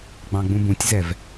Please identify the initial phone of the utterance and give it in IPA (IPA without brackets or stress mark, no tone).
ɡ͡b